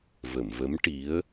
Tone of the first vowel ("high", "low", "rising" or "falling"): low